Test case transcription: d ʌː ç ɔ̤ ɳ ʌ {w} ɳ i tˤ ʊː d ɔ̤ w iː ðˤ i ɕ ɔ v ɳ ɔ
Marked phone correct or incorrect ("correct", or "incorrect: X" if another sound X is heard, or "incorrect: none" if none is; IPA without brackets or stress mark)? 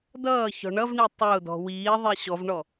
incorrect: v